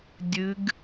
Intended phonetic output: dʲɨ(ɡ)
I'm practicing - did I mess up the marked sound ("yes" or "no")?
no